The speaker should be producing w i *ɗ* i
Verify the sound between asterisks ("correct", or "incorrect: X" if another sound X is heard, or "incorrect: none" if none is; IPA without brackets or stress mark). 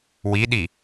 correct